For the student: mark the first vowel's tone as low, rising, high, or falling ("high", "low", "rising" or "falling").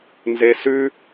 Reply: low